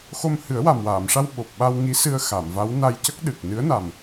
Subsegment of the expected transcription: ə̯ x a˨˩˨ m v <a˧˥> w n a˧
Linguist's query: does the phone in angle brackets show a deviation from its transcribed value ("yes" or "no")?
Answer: no